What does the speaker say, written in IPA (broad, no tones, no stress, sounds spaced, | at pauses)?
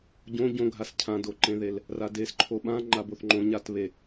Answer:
ɟ õ ɟ õ ɡʱ a s cʰ ã d o ǃ ẽ ð e l | r a d e s ǃʰ o ɓ ã ŋ͡ǃ a b o θ ŋ͡ǃ õ ɲ a t β e